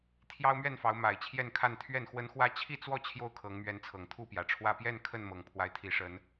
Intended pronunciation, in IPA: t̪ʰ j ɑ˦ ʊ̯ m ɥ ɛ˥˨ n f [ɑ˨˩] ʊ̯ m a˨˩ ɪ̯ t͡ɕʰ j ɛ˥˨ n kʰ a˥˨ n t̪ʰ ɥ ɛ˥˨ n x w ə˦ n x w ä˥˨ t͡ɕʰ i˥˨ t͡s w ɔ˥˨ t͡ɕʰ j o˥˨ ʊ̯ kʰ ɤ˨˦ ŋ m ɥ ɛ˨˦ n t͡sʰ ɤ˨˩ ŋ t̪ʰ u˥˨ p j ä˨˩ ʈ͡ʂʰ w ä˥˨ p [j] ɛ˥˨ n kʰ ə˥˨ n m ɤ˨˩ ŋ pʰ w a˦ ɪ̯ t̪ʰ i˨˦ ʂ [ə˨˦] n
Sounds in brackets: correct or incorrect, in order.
incorrect, correct, correct

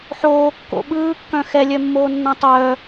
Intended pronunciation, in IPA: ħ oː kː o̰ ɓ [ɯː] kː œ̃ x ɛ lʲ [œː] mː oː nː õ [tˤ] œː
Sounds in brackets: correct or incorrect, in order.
correct, incorrect, correct

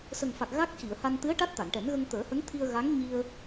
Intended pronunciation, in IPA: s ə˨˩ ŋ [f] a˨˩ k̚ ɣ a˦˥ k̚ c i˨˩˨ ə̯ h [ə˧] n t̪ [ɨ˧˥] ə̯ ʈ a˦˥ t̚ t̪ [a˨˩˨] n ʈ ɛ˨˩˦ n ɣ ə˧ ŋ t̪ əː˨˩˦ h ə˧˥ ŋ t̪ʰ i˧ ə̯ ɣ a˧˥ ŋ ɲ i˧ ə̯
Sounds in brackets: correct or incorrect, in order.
correct, incorrect, correct, correct

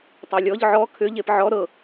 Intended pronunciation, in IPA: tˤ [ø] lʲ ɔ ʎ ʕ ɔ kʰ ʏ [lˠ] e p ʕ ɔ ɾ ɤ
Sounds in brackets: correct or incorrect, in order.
correct, incorrect

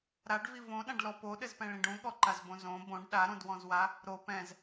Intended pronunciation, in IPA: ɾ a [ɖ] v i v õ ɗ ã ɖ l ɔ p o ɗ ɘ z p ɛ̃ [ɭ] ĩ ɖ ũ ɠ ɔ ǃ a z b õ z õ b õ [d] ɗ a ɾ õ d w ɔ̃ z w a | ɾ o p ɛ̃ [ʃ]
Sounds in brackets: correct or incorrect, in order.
correct, correct, incorrect, incorrect

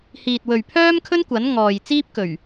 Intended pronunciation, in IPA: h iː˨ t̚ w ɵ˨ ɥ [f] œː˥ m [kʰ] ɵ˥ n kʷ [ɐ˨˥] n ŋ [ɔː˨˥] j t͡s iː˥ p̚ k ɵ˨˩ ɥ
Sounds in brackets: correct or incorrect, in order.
incorrect, correct, correct, incorrect

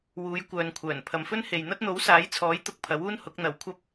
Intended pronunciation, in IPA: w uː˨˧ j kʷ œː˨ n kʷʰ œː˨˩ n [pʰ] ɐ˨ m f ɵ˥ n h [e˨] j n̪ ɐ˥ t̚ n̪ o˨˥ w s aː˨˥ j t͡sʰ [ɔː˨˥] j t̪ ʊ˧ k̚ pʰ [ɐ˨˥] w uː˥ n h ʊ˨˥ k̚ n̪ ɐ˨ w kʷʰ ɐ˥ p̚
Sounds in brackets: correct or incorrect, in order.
correct, correct, correct, correct

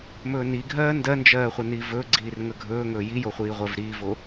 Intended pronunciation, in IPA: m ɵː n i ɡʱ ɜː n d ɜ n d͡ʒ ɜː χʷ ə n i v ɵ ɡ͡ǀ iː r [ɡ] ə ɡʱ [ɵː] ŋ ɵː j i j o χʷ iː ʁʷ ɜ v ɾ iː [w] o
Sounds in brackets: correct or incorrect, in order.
incorrect, correct, incorrect

